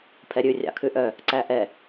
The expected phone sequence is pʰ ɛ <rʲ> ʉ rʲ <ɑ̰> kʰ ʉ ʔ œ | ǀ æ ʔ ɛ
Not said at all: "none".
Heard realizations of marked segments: ɾʲ, ɑ̰

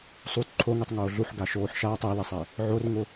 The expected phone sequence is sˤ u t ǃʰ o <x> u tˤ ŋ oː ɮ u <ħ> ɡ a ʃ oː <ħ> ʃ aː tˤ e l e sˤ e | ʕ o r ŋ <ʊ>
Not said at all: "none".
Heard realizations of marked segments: ŋ, ħ, ħ, ʊ

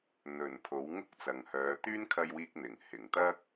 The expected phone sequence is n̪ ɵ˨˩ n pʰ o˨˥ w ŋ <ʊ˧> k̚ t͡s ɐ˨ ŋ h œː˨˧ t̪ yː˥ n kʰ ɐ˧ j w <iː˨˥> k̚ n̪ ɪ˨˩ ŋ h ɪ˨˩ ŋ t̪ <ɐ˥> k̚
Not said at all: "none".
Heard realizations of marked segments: ʊ˥, iː˧, ɐ˥

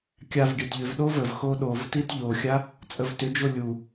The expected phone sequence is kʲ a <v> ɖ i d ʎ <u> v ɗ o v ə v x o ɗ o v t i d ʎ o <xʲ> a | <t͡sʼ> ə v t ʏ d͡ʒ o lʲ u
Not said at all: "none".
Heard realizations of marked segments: v, ʏ, xʲ, t͡sʼ

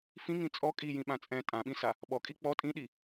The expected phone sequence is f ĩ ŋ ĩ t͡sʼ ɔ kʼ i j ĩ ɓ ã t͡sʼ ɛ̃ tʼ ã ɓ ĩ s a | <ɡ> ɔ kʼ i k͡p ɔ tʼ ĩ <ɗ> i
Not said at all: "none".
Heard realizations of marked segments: ɓ, ɗ

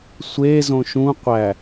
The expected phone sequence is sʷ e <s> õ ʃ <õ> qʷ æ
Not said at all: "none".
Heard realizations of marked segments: z, ũ

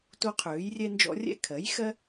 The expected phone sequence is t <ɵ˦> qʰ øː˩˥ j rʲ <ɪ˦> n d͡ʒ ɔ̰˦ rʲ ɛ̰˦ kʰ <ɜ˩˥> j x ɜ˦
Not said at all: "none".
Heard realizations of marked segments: o˦, ɛ˦, ɜ˩˥

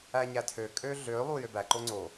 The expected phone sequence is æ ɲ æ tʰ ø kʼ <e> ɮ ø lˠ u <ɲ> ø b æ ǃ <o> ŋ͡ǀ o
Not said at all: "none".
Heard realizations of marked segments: ø, j, o

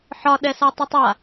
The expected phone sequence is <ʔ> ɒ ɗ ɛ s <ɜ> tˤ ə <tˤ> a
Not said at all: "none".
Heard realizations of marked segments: ħ, ɛ, tˤ

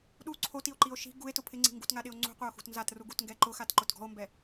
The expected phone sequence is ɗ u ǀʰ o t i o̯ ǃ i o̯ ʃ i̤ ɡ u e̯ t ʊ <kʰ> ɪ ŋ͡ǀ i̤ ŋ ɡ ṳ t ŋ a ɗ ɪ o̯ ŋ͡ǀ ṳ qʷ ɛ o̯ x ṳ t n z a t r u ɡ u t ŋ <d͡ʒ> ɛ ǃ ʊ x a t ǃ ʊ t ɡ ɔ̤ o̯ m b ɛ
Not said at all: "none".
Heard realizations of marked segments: pʰ, ɡ

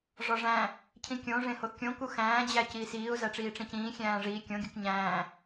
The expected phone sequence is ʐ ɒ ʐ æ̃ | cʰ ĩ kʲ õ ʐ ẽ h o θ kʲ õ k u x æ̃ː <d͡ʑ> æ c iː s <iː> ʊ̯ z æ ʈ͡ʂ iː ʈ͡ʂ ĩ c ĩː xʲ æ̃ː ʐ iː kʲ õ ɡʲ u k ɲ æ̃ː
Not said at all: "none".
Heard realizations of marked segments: d͡ʑ, iː

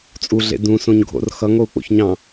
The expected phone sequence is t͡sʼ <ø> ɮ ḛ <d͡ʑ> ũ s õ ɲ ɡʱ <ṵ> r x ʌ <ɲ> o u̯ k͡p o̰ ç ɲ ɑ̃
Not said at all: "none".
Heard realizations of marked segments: u, d, o̰, ŋ

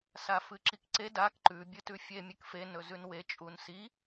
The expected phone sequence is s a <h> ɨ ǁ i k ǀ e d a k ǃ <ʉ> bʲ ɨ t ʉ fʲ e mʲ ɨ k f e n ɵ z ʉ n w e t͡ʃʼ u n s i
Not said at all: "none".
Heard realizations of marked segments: f, ʉ

